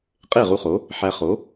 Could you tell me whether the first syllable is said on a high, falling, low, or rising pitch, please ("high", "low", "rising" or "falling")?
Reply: falling